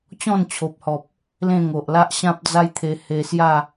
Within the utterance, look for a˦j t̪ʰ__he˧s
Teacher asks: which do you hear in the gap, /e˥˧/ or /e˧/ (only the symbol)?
e˧